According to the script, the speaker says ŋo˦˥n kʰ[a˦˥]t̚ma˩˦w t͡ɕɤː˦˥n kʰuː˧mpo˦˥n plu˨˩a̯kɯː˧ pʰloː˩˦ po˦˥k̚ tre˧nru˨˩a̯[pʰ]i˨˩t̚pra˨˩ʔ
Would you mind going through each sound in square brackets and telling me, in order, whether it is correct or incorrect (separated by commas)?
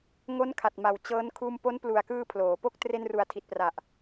incorrect, incorrect